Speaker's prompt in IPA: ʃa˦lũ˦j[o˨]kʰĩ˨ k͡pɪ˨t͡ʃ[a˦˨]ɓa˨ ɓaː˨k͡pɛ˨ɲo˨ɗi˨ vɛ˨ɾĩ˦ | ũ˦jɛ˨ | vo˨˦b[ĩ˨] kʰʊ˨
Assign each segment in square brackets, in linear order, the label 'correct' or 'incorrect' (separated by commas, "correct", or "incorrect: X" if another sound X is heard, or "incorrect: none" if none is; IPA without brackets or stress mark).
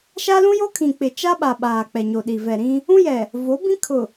incorrect: o˦, incorrect: a˦, incorrect: ĩ˦